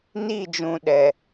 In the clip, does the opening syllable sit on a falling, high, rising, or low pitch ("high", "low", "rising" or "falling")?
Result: falling